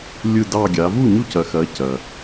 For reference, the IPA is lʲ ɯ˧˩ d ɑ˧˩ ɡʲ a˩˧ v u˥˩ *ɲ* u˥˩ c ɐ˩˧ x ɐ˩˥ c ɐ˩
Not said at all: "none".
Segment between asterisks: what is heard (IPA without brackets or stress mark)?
ɲ